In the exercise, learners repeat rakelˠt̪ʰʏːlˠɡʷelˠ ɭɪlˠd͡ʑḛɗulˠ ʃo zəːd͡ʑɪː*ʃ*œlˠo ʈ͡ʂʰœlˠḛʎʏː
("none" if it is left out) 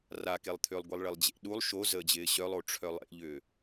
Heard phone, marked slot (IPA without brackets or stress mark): ɕ